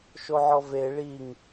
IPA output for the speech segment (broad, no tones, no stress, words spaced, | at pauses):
ʃoʕɔve ɭiŋ